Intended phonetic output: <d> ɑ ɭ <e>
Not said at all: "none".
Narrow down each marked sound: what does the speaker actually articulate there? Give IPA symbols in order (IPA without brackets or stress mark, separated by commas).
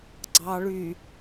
ɡ͡ǀ, y